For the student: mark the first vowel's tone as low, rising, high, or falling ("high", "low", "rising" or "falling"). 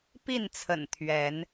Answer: falling